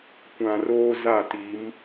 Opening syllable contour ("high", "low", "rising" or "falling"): low